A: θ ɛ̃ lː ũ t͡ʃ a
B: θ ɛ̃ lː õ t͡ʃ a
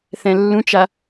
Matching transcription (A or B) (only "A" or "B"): A